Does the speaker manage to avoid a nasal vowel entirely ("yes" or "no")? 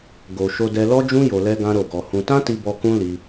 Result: no